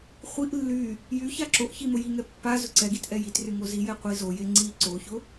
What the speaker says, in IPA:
χʷ i ʔ lː y | j y ç a ǁ o ʔ ç i m ʊ j i ŋ ɛ pː a z ʊ ǀ ɛ ɡ i t ʔ ɛ j i t r y ŋ o z i j ɛ qʷ i z o j e ŋ͡ǀ i ǀ o ç ʊ

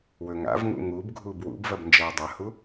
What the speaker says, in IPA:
w ɵ ŋ a̰ v ŋ ṵ ŋ u b ɡʱ u b w ṵ b v ɐ b n d͡ʒ ɐ w dˤ ɐ h u

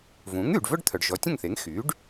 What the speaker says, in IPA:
v ũː˩˥ ŋ yː˩ ɖ v œ˥ ɖ t̪ʰ œ˩ ɖ ʒ ɔ˩˥ tʲ ə̃˥˩ ŋ θ e˩˥ ŋ x yː˩˥ ɖ

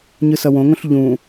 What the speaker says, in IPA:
ɲ ɯ s ʌ w õ ŋ õ ɬ ʎ ũ

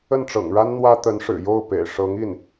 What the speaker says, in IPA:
ə˥˩ n ʈ͡ʂ ɤ̰˨˩ ŋ ɻ a˥ n n̪ w ä˥ t̪ ə˧˥ n ʂ ɻ̩˨˩ j o˥˩ ʊ̯ p ḛ˨˩ ɪ̯ ʂ ɤ˧˥ ŋ i˥˩ n

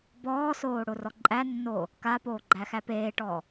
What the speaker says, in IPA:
b ɔː s oː ɽ o r ɔ ǃʼ æ nː oː | k a p oː ɡ͡ǃ æ x æ p eː ʈ ɔː

